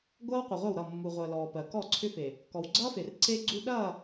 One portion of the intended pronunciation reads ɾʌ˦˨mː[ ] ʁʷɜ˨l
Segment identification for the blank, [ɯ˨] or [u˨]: u˨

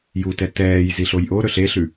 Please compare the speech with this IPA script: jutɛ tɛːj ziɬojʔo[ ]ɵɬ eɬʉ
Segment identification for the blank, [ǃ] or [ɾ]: ɾ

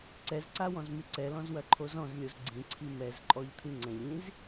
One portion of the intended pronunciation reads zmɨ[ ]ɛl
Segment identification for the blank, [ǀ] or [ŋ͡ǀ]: ǀ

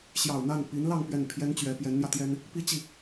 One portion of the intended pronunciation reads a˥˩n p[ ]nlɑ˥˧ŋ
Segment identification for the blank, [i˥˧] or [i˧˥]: i˧˥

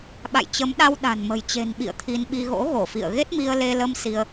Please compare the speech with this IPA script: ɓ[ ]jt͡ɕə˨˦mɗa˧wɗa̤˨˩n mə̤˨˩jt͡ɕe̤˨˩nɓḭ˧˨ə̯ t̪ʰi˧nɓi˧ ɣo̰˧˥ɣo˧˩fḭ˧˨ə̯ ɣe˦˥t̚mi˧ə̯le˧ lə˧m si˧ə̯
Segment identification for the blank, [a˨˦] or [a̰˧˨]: a̰˧˨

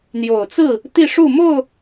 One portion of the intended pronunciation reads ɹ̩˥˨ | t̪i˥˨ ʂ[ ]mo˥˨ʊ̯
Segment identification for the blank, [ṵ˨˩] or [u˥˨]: u˥˨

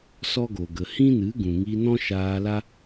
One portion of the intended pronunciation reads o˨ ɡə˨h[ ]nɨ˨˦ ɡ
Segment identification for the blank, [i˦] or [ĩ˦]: ĩ˦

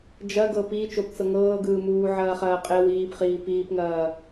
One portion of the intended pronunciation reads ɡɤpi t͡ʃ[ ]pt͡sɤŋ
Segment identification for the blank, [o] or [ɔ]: o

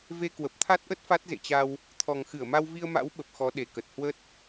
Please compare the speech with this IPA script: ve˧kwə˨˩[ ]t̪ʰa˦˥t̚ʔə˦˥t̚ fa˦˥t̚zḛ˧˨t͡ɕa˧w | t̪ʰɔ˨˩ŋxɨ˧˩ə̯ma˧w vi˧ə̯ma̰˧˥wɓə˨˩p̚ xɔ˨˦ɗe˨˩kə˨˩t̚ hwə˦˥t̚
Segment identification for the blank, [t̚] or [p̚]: p̚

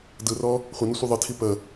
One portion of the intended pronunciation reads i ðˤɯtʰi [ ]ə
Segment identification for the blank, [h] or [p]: p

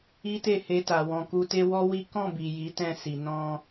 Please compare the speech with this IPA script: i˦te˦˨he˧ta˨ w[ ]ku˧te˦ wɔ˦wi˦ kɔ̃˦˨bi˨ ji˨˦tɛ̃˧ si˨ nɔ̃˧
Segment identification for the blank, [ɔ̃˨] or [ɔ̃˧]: ɔ̃˨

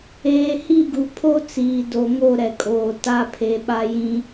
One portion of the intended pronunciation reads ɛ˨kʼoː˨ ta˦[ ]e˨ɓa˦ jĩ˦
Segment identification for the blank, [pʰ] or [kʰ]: pʰ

